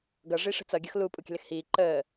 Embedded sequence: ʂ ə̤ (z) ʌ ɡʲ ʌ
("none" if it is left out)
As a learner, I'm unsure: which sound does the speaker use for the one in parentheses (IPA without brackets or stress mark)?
t͡s